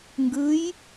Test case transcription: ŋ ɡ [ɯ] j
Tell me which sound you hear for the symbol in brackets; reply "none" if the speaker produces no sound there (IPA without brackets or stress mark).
ɯ